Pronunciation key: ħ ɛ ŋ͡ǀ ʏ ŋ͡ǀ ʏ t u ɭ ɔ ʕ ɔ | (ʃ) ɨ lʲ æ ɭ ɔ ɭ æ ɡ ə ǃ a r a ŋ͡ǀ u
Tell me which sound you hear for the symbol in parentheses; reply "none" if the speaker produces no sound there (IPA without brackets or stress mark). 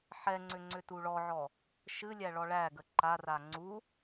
ʃ